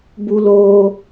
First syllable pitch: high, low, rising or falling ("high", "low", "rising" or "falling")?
high